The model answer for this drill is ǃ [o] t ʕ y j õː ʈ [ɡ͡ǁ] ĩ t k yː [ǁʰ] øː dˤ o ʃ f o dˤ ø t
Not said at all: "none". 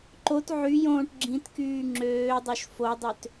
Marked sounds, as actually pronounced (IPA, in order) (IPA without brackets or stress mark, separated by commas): o, ɡ͡ǁ, ŋ͡ǁ